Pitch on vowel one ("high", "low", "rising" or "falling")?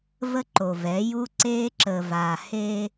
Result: high